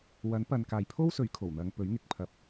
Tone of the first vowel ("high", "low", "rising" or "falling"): rising